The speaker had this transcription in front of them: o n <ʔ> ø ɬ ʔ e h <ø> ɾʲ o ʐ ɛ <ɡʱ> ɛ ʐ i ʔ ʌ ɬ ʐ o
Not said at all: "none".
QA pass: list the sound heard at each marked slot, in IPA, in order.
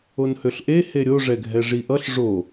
h, e, ɡʱ

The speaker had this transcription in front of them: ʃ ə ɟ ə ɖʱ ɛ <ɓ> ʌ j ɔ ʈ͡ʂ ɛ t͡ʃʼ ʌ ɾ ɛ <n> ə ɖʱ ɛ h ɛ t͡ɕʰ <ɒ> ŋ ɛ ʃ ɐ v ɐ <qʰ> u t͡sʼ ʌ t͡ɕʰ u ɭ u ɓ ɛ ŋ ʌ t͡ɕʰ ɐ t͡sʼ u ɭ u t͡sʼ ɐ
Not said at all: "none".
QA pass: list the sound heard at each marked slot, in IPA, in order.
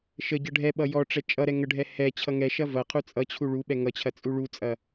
ɓ, ŋ, ʌ, qʰ

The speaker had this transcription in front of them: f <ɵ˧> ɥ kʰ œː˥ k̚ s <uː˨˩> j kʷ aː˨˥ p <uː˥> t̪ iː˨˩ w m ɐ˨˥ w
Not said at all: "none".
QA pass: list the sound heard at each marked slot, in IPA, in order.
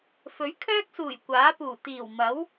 ɵ˨˥, uː˨˩, uː˨˩

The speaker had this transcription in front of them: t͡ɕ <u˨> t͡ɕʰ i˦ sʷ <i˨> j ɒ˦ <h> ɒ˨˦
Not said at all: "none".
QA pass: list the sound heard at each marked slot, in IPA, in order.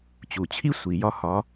u˨, i˨, h

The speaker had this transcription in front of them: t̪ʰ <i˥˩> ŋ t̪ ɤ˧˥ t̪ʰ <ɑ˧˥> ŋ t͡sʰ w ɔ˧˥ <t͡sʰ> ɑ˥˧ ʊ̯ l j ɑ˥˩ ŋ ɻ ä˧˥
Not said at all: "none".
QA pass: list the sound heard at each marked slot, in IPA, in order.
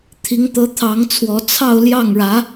i˧˥, ɑ˧˥, t͡sʰ

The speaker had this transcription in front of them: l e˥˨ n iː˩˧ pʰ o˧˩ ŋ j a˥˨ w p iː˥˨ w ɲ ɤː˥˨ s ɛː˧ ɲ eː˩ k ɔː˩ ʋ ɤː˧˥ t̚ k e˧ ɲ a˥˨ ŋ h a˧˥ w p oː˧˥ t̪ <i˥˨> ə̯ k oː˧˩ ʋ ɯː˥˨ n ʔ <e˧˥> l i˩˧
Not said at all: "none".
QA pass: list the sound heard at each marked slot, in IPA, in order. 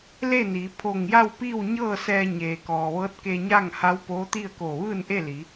i˥˨, e˥˨

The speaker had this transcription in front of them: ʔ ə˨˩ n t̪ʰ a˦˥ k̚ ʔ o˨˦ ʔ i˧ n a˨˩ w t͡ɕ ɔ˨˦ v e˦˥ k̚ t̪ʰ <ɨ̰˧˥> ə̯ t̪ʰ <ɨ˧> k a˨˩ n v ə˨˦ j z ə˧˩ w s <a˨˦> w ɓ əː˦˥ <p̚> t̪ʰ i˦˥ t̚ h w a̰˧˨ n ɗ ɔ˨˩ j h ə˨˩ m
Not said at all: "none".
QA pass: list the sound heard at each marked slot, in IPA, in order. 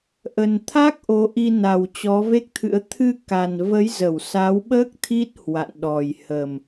ɨ̰˧˥, ɨ˧, a˨˦, k̚

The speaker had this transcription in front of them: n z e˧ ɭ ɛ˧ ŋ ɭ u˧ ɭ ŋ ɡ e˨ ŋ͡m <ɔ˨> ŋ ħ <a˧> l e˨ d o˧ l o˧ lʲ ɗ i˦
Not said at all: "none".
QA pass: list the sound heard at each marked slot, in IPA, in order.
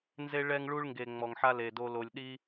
ɔ˨, a˧

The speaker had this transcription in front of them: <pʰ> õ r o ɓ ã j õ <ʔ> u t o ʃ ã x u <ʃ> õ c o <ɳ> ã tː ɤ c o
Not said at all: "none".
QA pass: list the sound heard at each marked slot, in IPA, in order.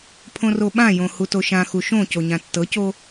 pʰ, h, ʃ, ɲ

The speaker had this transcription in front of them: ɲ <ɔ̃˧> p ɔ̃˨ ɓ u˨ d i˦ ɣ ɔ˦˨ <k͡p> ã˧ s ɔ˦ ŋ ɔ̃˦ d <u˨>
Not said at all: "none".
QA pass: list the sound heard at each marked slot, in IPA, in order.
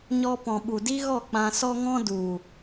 ɔ˧, k͡p, u˨

